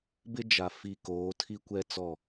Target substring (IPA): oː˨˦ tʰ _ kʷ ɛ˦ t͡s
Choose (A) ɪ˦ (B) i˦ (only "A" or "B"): B